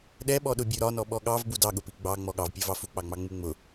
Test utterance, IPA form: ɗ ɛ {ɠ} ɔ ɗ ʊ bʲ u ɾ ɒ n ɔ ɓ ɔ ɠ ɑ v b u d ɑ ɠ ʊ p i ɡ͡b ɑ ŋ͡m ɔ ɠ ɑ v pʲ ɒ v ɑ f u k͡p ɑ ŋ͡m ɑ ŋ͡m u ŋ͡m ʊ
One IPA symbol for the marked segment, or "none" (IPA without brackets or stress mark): ɓ